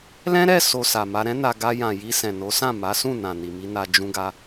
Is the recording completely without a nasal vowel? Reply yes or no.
no